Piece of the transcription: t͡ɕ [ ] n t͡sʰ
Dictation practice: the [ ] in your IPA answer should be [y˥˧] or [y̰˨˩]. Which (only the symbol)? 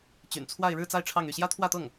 y̰˨˩